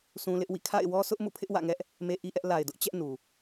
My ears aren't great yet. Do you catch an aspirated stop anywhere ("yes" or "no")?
yes